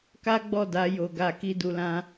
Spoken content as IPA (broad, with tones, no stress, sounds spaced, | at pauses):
k a˦ ɡ͡b ɔ˦˨ d a˨˦ j o˧ ɡ a˧ k i˧ d u˧ l ã˦